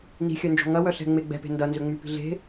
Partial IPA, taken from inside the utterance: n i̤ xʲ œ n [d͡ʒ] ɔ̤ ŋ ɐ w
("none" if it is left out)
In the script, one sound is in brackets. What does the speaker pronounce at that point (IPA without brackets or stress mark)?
d͡ʒ